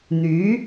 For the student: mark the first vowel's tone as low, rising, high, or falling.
rising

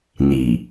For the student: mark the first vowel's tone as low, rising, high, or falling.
low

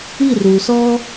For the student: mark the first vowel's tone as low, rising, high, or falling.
falling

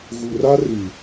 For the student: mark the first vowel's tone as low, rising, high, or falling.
low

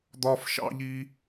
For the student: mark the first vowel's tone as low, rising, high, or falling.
high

